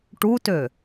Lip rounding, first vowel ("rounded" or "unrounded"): rounded